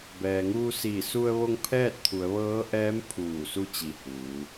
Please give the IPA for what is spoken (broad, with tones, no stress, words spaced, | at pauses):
bɛː˩ŋuː˧siː˧˩ su˧ə̯ʋo˧ŋ pʰɛː˥˨t̚t̪ʰu˩˧ə̯ʋɤː˧˥ʔɛː˧˥m pʰuː˧˩su˧ t͡ɕi˧˩huː˩˧